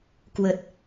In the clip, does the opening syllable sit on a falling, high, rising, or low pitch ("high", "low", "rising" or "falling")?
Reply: low